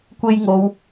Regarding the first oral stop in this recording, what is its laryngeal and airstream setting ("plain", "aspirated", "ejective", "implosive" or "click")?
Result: plain